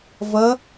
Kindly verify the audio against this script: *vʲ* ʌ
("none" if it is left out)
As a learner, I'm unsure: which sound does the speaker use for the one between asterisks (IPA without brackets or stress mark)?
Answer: v